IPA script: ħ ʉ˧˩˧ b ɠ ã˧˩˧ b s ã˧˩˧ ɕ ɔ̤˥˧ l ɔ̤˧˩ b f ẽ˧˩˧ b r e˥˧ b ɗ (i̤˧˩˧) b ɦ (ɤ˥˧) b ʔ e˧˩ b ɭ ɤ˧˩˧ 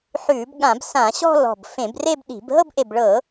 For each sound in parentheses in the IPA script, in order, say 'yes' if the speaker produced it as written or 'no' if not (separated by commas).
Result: yes, yes